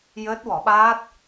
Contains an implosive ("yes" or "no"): yes